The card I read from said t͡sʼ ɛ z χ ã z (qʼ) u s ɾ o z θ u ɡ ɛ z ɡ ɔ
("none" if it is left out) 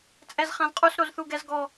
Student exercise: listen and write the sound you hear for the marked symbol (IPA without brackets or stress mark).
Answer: qʼ